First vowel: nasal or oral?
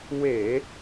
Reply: oral